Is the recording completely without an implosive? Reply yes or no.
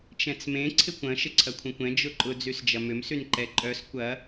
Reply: yes